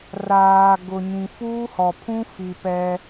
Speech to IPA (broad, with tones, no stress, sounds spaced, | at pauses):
r aː˨ ɡ ʊ˨ ɲ ĩ˨ f uː˦ h ɔ˨ pʰ ũ˦ f i˨ p ɛ˦